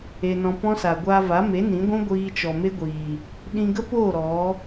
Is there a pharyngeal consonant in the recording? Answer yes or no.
no